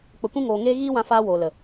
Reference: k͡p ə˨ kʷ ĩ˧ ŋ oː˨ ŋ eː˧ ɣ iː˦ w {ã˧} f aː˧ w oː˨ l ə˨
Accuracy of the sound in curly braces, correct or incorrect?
correct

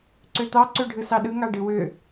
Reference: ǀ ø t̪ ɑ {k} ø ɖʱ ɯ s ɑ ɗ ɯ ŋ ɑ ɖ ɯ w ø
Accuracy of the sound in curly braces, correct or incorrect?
incorrect: ǀ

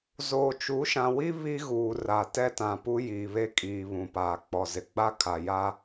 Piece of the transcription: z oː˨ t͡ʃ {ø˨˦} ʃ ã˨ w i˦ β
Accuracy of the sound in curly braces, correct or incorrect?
incorrect: u˨˦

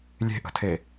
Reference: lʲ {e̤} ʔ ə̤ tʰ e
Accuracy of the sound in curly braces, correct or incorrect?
correct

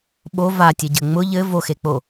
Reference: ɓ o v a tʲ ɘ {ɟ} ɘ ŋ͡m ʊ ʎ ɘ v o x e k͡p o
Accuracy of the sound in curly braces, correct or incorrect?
correct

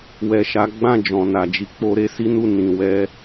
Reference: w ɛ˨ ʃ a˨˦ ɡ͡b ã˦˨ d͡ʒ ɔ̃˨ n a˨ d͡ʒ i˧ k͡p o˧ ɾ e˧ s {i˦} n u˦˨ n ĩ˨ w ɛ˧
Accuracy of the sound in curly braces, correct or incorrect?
correct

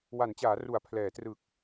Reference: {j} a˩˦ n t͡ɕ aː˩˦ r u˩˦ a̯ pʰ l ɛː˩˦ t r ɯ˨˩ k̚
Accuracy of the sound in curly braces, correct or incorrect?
incorrect: w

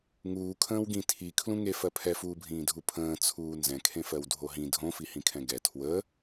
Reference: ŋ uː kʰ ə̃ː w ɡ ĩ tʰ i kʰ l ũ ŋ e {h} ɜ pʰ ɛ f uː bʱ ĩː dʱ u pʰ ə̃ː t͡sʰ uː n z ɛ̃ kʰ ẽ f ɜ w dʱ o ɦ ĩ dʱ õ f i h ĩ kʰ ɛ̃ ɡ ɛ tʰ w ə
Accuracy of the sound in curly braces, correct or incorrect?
incorrect: f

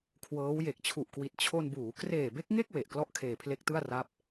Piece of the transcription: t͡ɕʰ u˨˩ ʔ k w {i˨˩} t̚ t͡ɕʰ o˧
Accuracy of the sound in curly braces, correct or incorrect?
correct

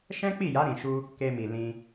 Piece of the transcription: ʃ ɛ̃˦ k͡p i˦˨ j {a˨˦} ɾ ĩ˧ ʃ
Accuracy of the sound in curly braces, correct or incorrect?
correct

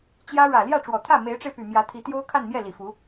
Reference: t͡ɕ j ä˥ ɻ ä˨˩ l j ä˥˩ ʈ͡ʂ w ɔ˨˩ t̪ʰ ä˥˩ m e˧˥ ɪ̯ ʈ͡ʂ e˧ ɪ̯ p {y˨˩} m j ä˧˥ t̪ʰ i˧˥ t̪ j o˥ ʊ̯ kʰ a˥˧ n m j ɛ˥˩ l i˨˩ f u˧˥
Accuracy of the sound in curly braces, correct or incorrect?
correct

